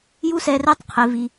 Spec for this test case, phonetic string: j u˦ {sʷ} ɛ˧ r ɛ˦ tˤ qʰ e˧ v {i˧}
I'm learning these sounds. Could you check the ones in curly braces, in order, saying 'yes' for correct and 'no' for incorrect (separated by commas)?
no, yes